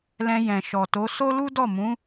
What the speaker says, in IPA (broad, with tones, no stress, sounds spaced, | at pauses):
l ɛ̃˧ j ɛ̃˨ ʃ ɔ˨ t o˨˦ s o˦ l u˦ d ɔ˦˨ m ũ˨˦